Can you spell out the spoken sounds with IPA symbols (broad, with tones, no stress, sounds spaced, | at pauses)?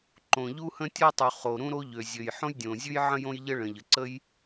ǃ õ˩ ʎ u˥ h ə̃˥ tʲ ɔ˥ tˤ u˩ χ o˩ ɾ ũ˥ ɾ o˥ ʎ ø˩ zʲ ø˩ j ħ õ˥ j dʲ õ˩ zʲ ʉ˥ j ʕ ə̃˥ j õ˥ j ʎ ə˥ ɭ ə̃˩ ʎ ə˩ ǀ ə˥ j